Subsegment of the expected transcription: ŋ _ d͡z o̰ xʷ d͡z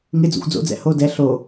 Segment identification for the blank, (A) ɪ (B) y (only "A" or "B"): A